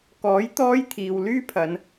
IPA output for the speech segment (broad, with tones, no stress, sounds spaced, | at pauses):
k ɔː˨˥ j t̪ ɔː˥ j t̪ʰ iː˨ w l yː˥ pʰ ɐ˨˧ n